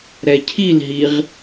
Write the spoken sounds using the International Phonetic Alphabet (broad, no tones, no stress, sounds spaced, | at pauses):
ɾ ɛ cʰ i l ɦ i ʁ